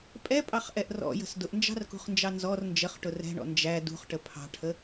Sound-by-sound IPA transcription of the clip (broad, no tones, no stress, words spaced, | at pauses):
pʼɛpʼɑχʔɛʔ rɔ̰jə̤s dʊʔnd͡ʒɑ̤rkṳχnd͡ʒɑ nzɔr nd͡ʒəχʈʊ rɛ̤ɳɔ̰ nd͡ʒæ dṳχʈə pʰɑ̤ʈʰə